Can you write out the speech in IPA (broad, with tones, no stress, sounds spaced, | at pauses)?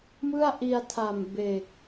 m ɯ˥˩ a̯ ʔ i˧ a̯ tʰ a˨˩ m b e˨˩ k̚